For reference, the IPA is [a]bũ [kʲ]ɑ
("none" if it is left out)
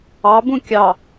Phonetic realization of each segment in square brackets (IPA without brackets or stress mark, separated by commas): ɑ, kʲ